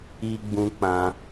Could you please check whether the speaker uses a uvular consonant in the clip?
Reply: no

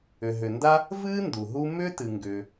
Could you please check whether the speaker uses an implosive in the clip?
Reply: no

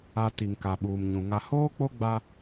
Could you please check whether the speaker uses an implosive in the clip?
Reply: yes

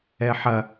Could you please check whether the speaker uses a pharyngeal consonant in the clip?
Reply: yes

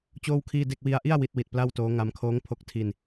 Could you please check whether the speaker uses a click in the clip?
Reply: no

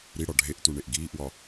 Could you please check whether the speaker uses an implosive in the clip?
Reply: no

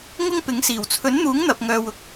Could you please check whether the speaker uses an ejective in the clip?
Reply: no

